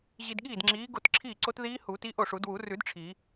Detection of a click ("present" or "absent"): present